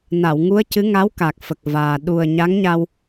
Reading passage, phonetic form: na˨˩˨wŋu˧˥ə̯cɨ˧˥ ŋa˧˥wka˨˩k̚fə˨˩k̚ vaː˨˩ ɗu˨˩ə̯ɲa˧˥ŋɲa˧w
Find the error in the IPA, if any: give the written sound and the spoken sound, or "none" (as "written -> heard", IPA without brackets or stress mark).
none